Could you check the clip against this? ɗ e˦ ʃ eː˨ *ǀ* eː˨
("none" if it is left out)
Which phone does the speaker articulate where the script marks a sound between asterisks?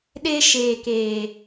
k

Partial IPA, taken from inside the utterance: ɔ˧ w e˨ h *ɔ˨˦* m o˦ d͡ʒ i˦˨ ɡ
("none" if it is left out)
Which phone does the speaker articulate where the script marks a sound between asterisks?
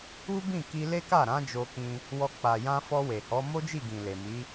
ɔ˨˦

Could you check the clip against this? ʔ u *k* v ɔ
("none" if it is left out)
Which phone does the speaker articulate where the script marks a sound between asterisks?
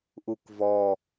k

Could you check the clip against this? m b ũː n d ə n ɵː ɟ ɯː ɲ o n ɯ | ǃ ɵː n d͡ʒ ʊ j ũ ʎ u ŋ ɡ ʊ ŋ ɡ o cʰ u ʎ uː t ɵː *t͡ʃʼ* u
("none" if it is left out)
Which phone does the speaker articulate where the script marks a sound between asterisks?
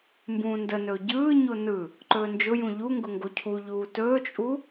t͡ʃʼ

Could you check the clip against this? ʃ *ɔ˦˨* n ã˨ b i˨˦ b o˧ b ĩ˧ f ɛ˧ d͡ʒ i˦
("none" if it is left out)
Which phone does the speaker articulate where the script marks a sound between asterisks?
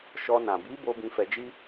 ɔ˧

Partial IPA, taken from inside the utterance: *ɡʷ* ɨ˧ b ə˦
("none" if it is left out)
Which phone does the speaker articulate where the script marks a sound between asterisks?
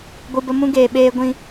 ɡʷ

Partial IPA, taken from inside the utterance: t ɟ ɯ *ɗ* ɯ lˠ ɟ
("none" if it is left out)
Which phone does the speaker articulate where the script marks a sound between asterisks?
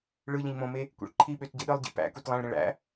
ɗ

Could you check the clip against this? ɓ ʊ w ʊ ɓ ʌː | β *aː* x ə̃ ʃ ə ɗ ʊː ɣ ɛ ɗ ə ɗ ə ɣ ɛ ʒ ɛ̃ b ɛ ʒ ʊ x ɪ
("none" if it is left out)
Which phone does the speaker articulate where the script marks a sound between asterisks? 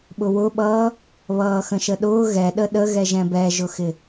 ʌː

